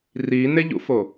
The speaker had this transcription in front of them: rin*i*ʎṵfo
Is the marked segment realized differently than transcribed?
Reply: yes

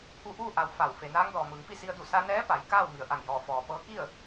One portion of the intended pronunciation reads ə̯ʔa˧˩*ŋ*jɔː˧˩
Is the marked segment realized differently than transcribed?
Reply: no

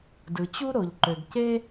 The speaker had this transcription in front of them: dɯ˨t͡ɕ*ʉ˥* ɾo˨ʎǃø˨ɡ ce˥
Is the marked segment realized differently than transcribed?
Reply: yes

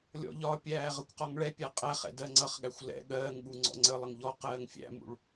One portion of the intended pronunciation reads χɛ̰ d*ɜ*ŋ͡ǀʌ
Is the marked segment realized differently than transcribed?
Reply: no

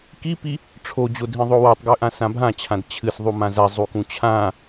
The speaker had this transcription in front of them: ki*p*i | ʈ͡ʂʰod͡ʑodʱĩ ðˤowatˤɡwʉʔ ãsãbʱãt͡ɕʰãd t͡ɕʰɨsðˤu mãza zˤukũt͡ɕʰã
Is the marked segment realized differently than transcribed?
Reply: no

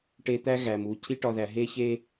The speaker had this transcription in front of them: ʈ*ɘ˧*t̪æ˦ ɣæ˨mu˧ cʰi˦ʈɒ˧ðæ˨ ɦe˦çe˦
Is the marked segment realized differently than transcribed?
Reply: yes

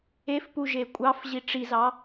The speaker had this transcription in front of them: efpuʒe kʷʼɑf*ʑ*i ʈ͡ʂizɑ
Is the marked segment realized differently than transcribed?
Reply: no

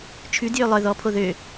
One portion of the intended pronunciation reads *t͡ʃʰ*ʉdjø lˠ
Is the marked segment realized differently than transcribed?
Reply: no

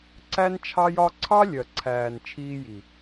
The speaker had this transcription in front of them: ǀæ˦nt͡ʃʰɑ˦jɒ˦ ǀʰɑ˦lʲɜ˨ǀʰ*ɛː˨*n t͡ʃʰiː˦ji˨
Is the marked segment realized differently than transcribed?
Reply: yes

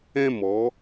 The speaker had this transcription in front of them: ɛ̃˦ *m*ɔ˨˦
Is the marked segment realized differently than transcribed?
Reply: no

